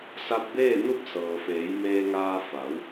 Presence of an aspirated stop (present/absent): absent